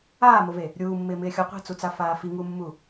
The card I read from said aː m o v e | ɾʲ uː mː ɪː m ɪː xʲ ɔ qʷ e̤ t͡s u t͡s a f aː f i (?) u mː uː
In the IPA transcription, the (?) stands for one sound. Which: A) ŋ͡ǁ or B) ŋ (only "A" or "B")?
B